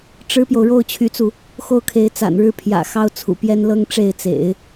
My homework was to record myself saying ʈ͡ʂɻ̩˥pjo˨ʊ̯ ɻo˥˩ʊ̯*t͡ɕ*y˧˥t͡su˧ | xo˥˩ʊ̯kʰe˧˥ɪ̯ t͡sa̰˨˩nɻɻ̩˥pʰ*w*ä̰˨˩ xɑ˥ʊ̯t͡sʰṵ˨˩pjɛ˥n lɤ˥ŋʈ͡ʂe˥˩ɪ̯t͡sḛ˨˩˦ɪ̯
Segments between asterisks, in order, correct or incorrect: incorrect, incorrect

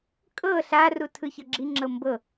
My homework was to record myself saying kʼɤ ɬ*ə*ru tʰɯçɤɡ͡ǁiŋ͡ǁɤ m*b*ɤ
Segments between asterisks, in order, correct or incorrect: incorrect, correct

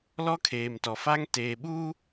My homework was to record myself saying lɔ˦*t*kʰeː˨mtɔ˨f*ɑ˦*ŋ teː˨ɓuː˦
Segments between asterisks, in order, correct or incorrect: incorrect, incorrect

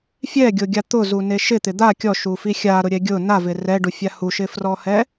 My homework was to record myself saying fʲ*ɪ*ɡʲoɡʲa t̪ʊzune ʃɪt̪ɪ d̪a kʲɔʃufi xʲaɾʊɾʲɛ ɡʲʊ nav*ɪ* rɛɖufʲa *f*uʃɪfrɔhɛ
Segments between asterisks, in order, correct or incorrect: incorrect, correct, incorrect

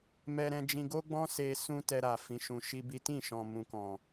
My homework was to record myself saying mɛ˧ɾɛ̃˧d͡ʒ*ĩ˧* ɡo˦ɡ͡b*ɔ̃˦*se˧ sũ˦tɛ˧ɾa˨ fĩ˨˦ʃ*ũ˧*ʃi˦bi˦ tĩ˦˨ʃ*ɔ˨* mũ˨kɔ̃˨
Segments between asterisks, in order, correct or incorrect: correct, correct, correct, incorrect

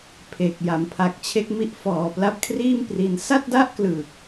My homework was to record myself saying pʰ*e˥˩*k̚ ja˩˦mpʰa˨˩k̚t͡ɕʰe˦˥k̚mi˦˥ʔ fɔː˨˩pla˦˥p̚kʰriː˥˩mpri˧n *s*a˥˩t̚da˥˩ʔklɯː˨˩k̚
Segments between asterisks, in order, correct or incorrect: incorrect, correct

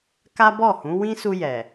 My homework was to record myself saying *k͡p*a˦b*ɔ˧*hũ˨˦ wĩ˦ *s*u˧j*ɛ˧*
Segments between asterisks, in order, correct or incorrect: incorrect, incorrect, correct, incorrect

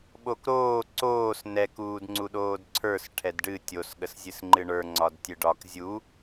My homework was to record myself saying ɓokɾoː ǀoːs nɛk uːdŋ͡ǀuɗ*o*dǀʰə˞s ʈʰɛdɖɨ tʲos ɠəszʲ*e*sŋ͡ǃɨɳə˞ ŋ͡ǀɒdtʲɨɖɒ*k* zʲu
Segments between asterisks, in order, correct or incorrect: incorrect, incorrect, correct

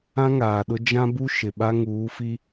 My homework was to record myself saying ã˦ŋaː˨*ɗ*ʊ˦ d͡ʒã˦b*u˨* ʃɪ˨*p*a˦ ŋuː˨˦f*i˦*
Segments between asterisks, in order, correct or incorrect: correct, incorrect, incorrect, correct

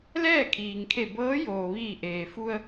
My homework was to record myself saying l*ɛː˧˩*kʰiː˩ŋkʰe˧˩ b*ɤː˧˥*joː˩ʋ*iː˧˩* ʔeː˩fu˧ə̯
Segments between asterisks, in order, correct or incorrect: incorrect, correct, correct

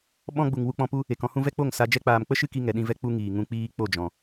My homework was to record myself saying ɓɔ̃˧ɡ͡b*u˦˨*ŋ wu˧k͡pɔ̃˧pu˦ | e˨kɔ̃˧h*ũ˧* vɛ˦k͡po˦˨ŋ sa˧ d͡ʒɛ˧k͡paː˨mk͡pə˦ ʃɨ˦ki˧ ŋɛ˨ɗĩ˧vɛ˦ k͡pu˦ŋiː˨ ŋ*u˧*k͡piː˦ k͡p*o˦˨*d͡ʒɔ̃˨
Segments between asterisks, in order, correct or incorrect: incorrect, correct, incorrect, correct

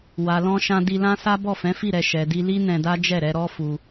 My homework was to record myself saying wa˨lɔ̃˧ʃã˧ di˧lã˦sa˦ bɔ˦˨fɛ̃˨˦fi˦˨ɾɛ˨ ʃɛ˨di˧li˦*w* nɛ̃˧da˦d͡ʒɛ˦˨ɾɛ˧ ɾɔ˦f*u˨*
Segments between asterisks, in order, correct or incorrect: incorrect, incorrect

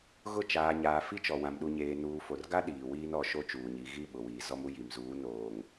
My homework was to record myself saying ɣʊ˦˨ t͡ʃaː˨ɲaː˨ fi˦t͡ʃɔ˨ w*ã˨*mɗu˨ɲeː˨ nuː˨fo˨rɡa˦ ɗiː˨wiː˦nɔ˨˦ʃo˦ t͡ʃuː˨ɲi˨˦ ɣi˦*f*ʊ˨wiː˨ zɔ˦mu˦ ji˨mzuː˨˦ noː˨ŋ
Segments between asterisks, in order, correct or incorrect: correct, incorrect

